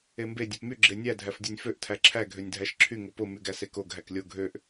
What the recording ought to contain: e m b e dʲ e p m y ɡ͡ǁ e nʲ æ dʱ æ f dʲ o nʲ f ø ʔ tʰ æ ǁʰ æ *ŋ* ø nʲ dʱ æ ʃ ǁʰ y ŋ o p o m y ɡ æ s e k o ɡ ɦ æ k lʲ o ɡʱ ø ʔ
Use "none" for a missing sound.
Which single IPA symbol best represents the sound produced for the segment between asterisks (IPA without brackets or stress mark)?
ɡʱ